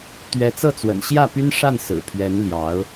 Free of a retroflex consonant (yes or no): no